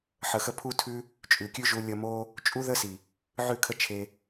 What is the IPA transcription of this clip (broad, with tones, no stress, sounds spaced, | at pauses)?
ħ ə˨ x ə˧ pʰ u˦ tʰ ʉ˦ | t͡ʃʼ ʉ˨ kʲ ʉ˦ ʒ u˧ lʲ ə˧ m o˦ | t͡ʃʼ u˦ ð ə˦ s i˨ | ʕ ʉ˦˨ kʰ ə˦ t͡ʃʰ e˧